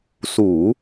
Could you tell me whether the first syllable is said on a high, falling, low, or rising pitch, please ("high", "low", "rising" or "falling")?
low